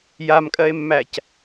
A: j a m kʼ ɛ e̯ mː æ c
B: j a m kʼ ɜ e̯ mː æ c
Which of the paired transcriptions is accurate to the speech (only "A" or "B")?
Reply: B